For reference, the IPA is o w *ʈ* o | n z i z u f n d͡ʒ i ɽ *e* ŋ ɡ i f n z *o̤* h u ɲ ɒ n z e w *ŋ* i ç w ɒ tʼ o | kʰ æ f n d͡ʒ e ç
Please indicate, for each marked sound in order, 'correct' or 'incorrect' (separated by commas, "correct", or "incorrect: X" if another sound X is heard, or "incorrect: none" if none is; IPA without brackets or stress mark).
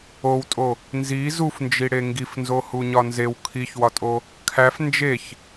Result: incorrect: tʼ, correct, incorrect: o, incorrect: kʰ